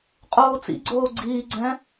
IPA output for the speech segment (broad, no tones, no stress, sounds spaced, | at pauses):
qʼ oː t͡s ḭ ɡ͡ǀ oː ɡ͡ǀ iː ɡ͡ǀ ɛ̃